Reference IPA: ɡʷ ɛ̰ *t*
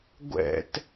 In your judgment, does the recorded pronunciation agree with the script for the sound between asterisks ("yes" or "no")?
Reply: yes